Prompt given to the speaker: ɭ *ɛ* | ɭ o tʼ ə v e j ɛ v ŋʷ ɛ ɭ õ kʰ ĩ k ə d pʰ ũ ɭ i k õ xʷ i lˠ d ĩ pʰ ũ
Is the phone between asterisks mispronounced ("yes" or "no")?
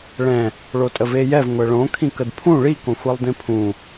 yes